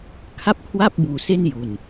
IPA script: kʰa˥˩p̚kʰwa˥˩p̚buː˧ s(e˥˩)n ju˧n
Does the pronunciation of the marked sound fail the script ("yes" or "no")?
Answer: no